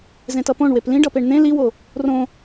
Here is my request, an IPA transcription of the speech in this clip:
zẽtʌpõɳ weplĩɖʌpeɳ n̪ẽ liwo | rõ

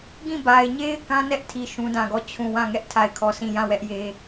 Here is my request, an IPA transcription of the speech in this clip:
ɡĩ˦˨ba˨ɪ̯ɲe˦ɪ̯ kã˦nɛ˦ʔtʰi˨ ʃũ˦dã˦˨ɡɔ˦˨ t͡ɕʰũ˦˨ wã˦˨ŋɛ˦ʔ tʰa˦˨ɪ̯kʰɔ˦˨sĩ˦˨ jã˦˨wɛ˦ʔje˦

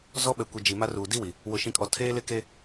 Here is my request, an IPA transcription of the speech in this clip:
zɔ˦ɓɛ˨kʷi˨ d͡ʒi˨ma˦ruː˨ di˦wi˨ | wʊ˨ʃĩ˨kʼɔ˨ tʰeː˦lɪ˦ke˦

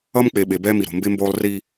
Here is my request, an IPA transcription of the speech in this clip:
ʌ˦mk͡pe˨ ɓe˨bɛː˦mi˨ ɾo̤˨mbe˦mboː˦lˠ ri˦

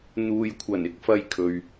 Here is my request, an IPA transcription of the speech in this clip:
n̪uː˨jkʷʰɐ˨˩n ɪ˨k̚fɐ˧jkʰɵ˨ɥ

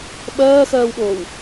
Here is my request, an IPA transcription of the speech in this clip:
ɓɜːxɜːwɠoːw

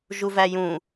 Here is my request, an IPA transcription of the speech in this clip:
ʒuvæjũ

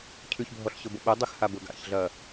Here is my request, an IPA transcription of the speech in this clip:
cʰʉçbʱɔɬɕʊbʊ ɓədˤəxhab ʊɡa̰çɮɐ

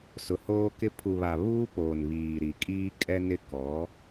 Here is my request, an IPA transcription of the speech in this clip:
sʊ˨hoː˦kɪ˦ pʰu˨βa˨ βuː˦ poː˨nβiː˨ɾi˨ kʼiː˦kʼɛ˦nɪ˦ kɔ˨˦

